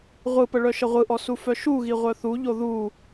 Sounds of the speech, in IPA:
ʁʷɯpə ɭœʃəʁʷɯʔɔ sufœʃuɣi ʁʷœθuʎo ðu

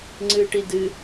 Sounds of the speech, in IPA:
ŋ͡ǀɨːʈidɨ

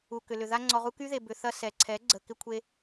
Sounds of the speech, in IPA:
u˨kʏ˨lʏ˨ ða˧ŋ͡ǀɔ˨ʁu˧ ky˦ðe˨ bʏ˨ θɐ˧ sɛ˨ǀʰɛ˨˦ ɡ͡ǀə˨kɪ˧kʷʰe˧

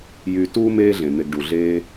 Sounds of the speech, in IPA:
jy˨ tuː˥meː˦ ɮẽ˩n̪e˨ɡɖu˩ɮeː˦

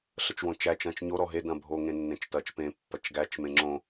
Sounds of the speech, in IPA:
ɬət͡ʃwõt͡ʃæ t͡ʃɐ̃t͡ʃɲo ɾɔɦe dɐ̃bʱo ŋẽnːẽt͡ʃtɐt͡ʃ pẽ pːɐt͡ʃɡæt͡ʃ mẽŋ͡ǁõ

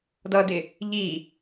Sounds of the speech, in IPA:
dʌdɪ | ʎi

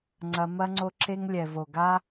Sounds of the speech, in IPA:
ŋ͡ǀɐ˧ mɐ˧ŋ͡ǀo˧ǁe˧ŋ lʲɛ˨vo˨ɡa˧

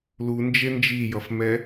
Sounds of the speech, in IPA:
lund͡ʒe nd͡ʒijʌfmɛ

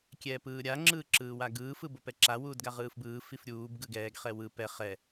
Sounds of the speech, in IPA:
kʲɛːpɯːɾʲa ŋ͡ǁɯːǁɯːwaɡɯː fɯbopɛǁa wuːdɡaʁɯːfbɯː fifɾʲuːb ɡɯɡɛːɡ χɛwɯ pɛ χɛ

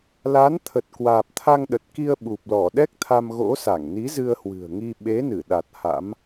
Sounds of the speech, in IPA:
la˨˦nt̪ʰə˨˩t̚kwaː˨˩p̚ t̪ʰa˧ŋɗə˨˩t̚ki˧ə̯ɓu˨˩p̚ lɔ˧˩ɗɛ˦˥k̚t̪ʰa˧m ɣo̰˧˥sa˧˩ŋni˨˦ zɨ˧ə̯hwɨ̤˨˩ə̯ŋi˧ ɓe˨˦nɨ˧˩ɗa˨˩t̚ ha̰˧˥m

